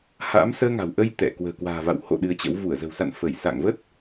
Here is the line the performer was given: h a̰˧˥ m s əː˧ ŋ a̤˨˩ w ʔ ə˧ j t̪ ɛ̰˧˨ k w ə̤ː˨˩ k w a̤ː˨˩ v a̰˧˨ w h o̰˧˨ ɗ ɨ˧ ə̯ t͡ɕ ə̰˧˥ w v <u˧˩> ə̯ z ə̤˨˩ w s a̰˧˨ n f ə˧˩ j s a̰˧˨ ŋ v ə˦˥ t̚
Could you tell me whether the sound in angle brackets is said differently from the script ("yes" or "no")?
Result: no